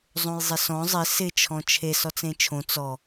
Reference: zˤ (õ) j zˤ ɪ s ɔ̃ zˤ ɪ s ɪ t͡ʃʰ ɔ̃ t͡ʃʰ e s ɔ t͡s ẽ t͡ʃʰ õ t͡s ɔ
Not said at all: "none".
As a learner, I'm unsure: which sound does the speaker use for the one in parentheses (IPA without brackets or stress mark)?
õ